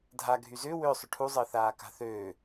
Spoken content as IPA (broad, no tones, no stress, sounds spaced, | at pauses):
dʱ a ɡʱ y z ʏː w ʏː sˤ ʏ ʈʰ u zˤ əː θ aː k a̤ θ øː